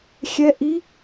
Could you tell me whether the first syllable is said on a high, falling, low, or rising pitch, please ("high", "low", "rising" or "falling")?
rising